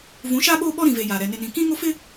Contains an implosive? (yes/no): yes